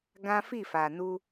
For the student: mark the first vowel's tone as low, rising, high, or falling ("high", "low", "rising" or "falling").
high